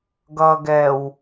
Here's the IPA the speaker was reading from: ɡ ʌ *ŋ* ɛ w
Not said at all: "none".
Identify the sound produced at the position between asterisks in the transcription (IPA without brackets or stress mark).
ɡ